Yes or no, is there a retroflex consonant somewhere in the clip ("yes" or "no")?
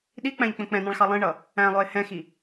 yes